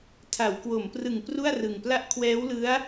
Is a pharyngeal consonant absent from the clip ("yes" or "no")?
yes